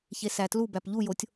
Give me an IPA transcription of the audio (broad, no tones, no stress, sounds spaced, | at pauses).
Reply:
ç e s æ t l u b æ p ʎ u j o tʲ